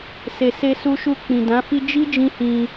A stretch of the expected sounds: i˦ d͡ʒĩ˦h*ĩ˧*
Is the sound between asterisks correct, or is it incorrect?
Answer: correct